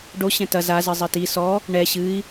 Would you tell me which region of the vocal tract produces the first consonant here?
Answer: retroflex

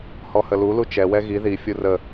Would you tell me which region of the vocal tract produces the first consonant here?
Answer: throat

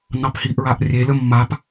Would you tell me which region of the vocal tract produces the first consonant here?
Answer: tongue tip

